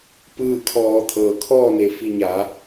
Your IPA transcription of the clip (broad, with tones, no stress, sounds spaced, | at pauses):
p ɯː˥˨ kʰ ɔː˧ t̪ʰ ɤː˩ kʰ ɔː˥˨ n e˧˩ f i˥˨ ɲ a˩˧